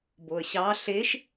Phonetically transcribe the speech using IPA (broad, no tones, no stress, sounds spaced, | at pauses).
b o ə̯ ɕ ɑ ɬ e ʃ